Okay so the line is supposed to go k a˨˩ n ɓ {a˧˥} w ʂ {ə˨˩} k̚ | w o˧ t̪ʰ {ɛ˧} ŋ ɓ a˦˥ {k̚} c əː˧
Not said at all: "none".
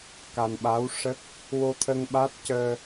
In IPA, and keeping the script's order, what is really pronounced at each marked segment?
a˧˥, ə˦˥, ə˧, t̚

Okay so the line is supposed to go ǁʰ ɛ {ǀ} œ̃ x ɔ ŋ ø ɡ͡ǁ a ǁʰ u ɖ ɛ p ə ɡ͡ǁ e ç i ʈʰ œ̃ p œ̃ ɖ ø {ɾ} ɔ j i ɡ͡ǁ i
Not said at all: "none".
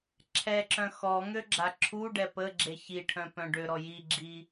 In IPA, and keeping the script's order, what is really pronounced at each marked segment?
ǁ, ɾ

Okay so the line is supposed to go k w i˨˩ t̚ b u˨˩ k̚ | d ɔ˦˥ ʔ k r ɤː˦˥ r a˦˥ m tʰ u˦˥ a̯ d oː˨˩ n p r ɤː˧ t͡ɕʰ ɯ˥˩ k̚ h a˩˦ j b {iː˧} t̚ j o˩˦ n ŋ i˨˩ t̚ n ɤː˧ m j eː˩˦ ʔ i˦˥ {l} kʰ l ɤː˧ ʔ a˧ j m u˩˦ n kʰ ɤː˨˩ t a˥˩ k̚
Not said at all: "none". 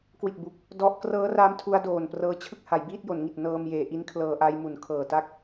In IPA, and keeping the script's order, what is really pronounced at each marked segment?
iː˥˩, n

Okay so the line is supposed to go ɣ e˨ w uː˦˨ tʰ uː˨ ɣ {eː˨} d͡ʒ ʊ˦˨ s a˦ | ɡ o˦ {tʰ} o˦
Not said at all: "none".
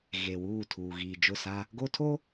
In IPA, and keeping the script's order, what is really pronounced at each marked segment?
iː˨, tʰ

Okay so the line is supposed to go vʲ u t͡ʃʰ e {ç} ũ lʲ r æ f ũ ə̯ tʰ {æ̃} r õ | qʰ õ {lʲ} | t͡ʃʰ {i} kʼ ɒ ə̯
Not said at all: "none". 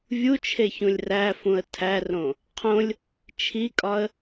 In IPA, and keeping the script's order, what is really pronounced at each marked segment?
ç, æ, lʲ, i

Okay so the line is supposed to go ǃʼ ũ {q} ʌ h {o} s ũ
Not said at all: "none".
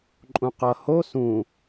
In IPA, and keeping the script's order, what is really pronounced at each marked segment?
q, o

